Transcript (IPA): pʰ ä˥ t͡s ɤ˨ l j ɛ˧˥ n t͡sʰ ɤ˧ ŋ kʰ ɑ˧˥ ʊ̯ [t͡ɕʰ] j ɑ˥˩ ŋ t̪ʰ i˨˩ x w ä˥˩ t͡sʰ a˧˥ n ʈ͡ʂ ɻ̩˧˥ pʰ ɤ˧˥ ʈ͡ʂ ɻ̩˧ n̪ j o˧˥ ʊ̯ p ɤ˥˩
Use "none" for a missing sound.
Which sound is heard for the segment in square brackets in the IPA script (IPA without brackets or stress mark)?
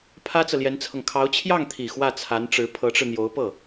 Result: t͡ɕʰ